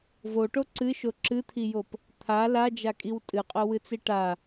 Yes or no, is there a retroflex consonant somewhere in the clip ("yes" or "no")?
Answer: yes